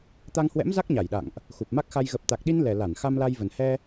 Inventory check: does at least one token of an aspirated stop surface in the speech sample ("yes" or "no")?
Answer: no